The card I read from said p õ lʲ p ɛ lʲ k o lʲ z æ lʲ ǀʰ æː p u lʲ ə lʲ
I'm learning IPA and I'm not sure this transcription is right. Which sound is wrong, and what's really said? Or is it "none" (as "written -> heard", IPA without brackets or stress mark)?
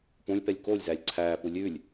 ə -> ʉ